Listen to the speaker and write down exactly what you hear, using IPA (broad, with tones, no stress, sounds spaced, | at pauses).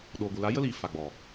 ɗ oː˨ ɡʷ ɨ˨ l a˨˦ j ə˦ l iː˨ f a˨ ɡ͡b ɔ˨